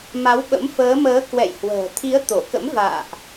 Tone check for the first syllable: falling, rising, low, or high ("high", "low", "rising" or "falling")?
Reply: rising